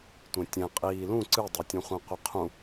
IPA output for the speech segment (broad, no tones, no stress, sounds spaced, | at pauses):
tʷ ẽ tʲ ɛ̃ qʼ iː l ũ ǀ ɨ dˤ ɛ tʲ ũ χʷ ĩ qʷ ɨ qʰ ũ